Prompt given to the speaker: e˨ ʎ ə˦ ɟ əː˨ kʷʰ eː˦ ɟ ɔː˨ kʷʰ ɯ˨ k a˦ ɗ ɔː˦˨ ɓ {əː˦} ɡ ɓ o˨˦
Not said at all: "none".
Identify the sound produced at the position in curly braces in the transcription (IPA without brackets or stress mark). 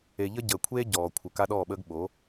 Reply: əː˦